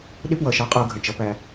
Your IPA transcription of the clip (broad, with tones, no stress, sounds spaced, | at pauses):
ɗ ɪ˦ p w ʌ˨ ʃ ɑ˦ qʼ ʊː˦ ɡʱ ə̃˨ t͡ʃ ʌ˦ p æ˦